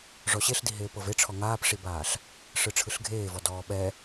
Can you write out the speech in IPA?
ʐ ɔ ɕ e ɬ d i ɦ eː p ɤ v e ʈ͡ʂʰ ɔ ŋ aː p ʂ i b aː ɬ | ʂ ɯ ʈ͡ʂʰ ɯ ɬ ɡʱ eː v ɔ d ɔː ɓ ɛ

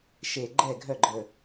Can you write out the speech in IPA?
ʃ e˧˩ ɡ͡ǃ ɛ˥˨ ɡʱ œ˥˨ ɡ͡ǃ ə˧˩

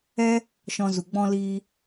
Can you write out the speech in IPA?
ɛ˧ | ʃ ɔ̃˧ z u˨ ɡ͡b ɔ̃˦ l iː˦

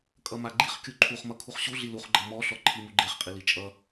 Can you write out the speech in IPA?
kʼ ʌ m a ɡ͡ǃ i χ kʲ u ǃʰ u χ m ʌ kʰ u χ ɕ u ɮ i l u χ ɡ͡ǃ ʌ m ɔ ɬ ɔ ǃʰ i m u ɡ͡ǃ e χ qʼ i l i t͡ʃʼ ʌ

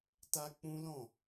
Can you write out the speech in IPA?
t a˧ k͡p ũ˦ l ɔ̃˦˨

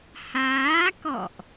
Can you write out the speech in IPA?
h aː˨˦ k ɔ̰˧˨ ʔ

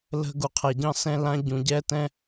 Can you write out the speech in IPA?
l ə̤˥ ɡ u˧ qʰ ɛ˧ ɟ ɑ̃˥ s ɛ̃˥ l ã˥ ɟ ũ˧ ɟ ɛ˥ t ɛ̃˥

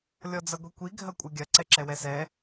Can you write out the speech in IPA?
lʲ ɔ d͡z ɐ ɡʷ i kʷ i ɡʱ ɐ kʷʼ ɐ ɡʲ ɐ ǀ ɛ ǁ ɛ w ɛ s ɛ

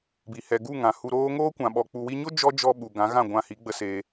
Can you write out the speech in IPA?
b i˨ h ɛ˨ ɡ u˦˨ ŋ ã˨ h u˧ ɾ oː˦ ŋ oː˦ kʷ ã˨ ɓ ɔ˨ k͡p u˨ w i˧ ɲ o˦ d͡ʒ ɔ˦ d͡ʒ ɔ˧ ɓ u˨ ɡ ã˨˦ ɣ ã˦˨ ɡʷ ã˧ h i˨˦ ɡ͡b ə˧ s eː˧

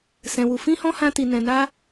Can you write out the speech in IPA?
s ɛ̃˧ w u˧ f ĩ˦ h ɔ̃˦ h ã˦ t i˧ n ɛ̃˧ n a˦

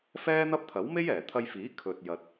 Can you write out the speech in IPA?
f ɛː˥ n̪ ɐ˥ p̚ t̪ʰ ɐ˨˥ w m e˥ j ɛː˨˩ t̪ʰ ɐ˧ j f iː˨˥ kʰ ɵ˨ t̚ j ɐ˧ t̚

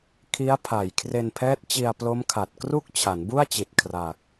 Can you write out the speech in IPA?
kʰ i˦˥ a̯ pʰ a˨˩ j kʰ r e˧ n pʰ ɛː˦˥ t̚ t͡ɕ i˧ a̯ p l o˦˥ m kʰ a˨˩ t̚ k r u˥˩ k̚ t͡ɕʰ a˩˦ n b u˥˩ a̯ t͡ɕ i˨˩ t̚ kʰ r a˨˩ k̚

